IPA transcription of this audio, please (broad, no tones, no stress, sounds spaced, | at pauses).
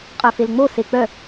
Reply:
qʼ œ f e l ŋ͡m o s e k͡p œ